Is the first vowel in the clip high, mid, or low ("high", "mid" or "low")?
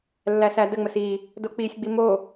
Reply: low